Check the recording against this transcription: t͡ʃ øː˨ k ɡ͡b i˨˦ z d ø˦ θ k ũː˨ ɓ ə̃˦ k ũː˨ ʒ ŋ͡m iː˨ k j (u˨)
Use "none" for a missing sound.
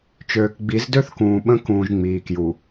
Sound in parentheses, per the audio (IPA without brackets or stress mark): u˨